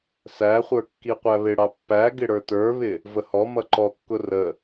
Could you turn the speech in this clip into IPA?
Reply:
sæχʷə˞ kːiqʷæβɪɽɑ pːæɡɪ ɽə˞tə˞βɪ | vəhɔmʌ ǃɔkːʊ rə

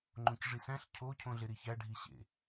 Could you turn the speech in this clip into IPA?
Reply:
ŋ͡ǃõcʐisæ̃ɬ cʰocʰõɮe ɾiçæɖʱiɕḛ

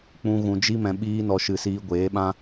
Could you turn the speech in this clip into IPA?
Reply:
k͡pũ˦ ɣũ˧d͡ʒi˦mɛ̃˧ ɓiː˦nɔ˧ ʃɨ˧siː˧ɡʷeː˨˦ɓã˦

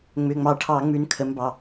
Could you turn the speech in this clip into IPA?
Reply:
ŋ͡mʏ˩˧˩ŋ͡mɑ˧˩˧ʈʰɑ˧˩˧ ŋ͡mʉ˨˦nkʰə˨˦mbɑ˩˧˩

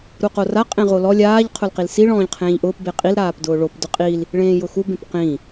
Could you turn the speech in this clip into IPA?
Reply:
ɾuqora qʼẽʁolɔ lʲaːʎ qʰʊlqilsi ɭɔ̃ːʎqʰẽːʎʔʊːp beqʼil ɾaːpdʊːɭop dʊqʼil | ɭẽːjʊxu bẽpqĩ

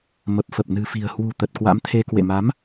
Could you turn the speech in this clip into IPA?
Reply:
mə˨˩p̚ fə˨˩p̚nɨ̤˨˩fi̤˨˩ə̯ hwṳ˨˩ t̪ə˨˩t̚kwa̰˧˥mt̪ʰe˧ kwḛ˧˨ma˨˦m

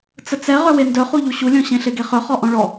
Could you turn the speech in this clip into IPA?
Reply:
t͡sət͡sɛ ʁœwendœχu ʎuɕulʲɔ̃ ɕẽɬeɡeχœ χɔʔɔ̃ɭɔ

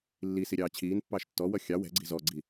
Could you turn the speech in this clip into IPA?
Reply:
lːisi ɾʲɑːt͡ɕʰiːnpːɑːʃ tːɔwʌ xʲɑ wɛ̤ɡ͡ǀi̤ zɔɡ͡ǀi

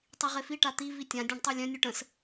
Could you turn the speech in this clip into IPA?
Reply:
tˤiʁefi ʈat̪i vitʲã dʲœ̃ɖtˤœlʲœ̃ nʲuʈə̃s

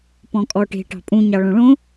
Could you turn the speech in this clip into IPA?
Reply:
pɔ̃kʼɔʈe̤ ʈɑ̤pʼũ ɲɑɭõɭõ

